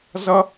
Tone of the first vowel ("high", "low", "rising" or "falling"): high